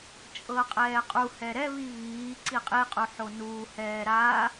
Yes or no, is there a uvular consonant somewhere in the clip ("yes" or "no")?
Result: yes